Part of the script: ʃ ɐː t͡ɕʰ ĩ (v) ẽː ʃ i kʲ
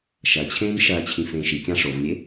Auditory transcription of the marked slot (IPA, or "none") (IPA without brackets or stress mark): f